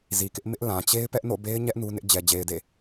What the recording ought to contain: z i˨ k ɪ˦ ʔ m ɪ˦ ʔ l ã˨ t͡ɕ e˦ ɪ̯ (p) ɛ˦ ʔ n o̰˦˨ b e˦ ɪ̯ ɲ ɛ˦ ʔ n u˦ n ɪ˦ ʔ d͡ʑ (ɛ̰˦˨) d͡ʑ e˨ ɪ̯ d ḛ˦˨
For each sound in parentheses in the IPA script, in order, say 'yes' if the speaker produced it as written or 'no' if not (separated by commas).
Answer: yes, no